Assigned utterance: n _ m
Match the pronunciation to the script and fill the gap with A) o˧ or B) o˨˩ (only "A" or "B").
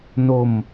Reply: A